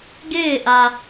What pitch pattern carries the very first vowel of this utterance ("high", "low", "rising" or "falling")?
falling